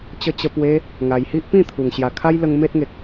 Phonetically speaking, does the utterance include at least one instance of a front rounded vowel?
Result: no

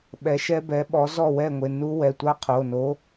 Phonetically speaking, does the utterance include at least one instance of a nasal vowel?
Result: no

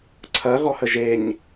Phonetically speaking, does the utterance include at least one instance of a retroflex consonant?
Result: no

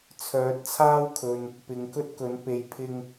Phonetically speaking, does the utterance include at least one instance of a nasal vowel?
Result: no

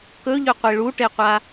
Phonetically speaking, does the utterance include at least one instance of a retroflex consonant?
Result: yes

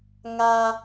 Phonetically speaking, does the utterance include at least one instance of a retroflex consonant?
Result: no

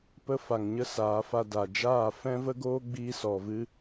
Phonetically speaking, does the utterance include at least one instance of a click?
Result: no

